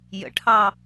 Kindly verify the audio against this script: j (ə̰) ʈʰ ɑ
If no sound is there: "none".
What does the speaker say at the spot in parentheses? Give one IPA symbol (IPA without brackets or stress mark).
ə̰